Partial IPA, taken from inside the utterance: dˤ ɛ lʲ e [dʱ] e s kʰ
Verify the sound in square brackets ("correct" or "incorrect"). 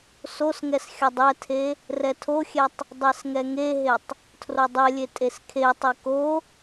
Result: incorrect